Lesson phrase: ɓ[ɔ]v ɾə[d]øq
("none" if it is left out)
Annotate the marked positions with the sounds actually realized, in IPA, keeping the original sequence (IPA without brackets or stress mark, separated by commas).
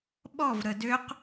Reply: ɔ, d